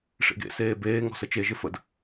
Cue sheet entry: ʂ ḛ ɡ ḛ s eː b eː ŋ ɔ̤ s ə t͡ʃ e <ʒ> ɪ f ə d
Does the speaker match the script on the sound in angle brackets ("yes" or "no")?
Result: yes